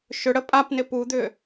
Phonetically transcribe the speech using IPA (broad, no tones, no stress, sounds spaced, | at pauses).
ʃ ʏ ɽ ə pʼ a p n ɪ p u d̪ ʏ